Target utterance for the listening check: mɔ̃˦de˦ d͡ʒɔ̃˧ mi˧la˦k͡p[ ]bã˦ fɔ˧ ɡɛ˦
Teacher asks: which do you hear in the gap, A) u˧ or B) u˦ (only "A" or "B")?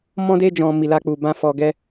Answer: A